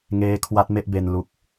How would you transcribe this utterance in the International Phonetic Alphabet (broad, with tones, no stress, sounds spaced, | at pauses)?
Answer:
ŋ eː˦˥ kʰ w a˦˥ t̚ m e˥˩ ʔ b e˧ n l u˦˥ k̚